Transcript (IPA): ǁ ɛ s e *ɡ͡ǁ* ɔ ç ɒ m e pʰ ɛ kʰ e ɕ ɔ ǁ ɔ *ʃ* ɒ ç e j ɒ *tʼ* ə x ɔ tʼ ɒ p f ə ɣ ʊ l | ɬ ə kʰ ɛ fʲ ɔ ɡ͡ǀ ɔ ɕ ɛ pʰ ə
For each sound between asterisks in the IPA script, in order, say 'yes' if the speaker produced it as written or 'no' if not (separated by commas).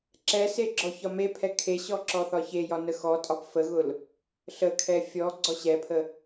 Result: yes, no, no